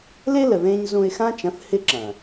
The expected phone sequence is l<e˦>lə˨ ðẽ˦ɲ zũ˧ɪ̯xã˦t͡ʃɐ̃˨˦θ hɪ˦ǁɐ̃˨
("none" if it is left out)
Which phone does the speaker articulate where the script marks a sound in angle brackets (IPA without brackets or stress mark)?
e˦